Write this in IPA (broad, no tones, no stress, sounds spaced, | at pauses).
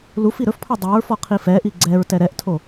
l u f i ɾ ɵ f pʰ ɔ dˤ ɛ ɹ f ɔ qʰ i f ɛ ʔ i ɡ͡ǀ ɛ ɹ t ɛ ɾ ɛ ʔ tʰ o